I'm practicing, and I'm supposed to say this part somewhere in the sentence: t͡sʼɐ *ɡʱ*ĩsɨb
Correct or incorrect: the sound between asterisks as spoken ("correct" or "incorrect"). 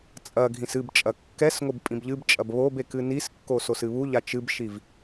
correct